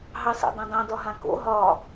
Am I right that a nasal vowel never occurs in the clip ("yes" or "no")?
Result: no